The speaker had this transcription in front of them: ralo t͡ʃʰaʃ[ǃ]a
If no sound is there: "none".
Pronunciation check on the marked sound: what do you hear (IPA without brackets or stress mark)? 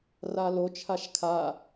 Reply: kʰ